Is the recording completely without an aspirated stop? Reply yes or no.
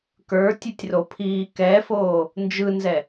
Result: no